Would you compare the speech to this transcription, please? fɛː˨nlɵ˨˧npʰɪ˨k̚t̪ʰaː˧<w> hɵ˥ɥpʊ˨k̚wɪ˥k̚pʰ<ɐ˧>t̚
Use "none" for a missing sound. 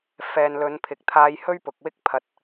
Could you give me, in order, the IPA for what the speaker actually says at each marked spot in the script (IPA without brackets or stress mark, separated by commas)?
j, ɐ˧